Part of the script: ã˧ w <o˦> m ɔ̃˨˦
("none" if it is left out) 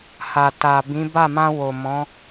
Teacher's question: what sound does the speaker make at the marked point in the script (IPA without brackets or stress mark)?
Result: o˨